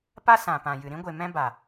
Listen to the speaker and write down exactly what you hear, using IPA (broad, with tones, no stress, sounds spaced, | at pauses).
p a˦ s ã˨ p ã˨ j ɨ˨ ɾ ĩ˦ ɡʷ e˨ m ɛ̃˦ b a˨